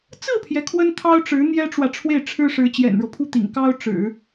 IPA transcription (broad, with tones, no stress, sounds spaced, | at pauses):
t͡s ɹ̩˥˩ pʰ j ɛ˩ kʰ w ə˥ n t̪ʰ ɑ˥ ʊ̯ ʈ͡ʂ ɻ̩˧˥ n̪ j ɛ˥ ʈ͡ʂ w ä˨ ʈ͡ʂʰ w e˥˩ ɪ̯ ʈ͡ʂʰ ɻ̩˥ ʂ ɻ̩˧˥ t͡ɕ j ɛ̰˨˩ n ɻ ɤ˦ pʰ u˥˩ t̪ ḭ˨˩ ŋ k ɑ˥ ʊ̯ ʈ͡ʂ ɻ̩˨˩˦